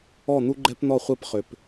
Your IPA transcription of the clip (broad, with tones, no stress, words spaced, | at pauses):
ɔ˦˨n̪u˦ɡ͡ǃɛ˦pn̪ɔ˦˨ χʷɛ˦pχʏ˨p